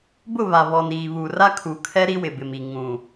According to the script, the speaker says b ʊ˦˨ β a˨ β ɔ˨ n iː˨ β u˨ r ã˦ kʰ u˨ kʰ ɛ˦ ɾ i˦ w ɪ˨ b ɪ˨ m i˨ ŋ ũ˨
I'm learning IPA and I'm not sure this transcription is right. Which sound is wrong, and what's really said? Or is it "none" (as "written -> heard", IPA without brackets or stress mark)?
ã˦ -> a˦